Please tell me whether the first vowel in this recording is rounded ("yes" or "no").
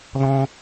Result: yes